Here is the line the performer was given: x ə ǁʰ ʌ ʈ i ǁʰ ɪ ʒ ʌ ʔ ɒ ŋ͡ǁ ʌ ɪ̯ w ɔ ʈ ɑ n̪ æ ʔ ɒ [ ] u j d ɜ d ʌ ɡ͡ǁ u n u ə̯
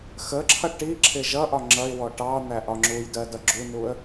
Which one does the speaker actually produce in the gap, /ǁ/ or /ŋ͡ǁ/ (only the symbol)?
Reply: ŋ͡ǁ